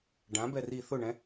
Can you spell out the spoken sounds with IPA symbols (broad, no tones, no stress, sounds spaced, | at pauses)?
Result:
ɖ ã b ɛ r i θ ʊ ɳ ɛ̃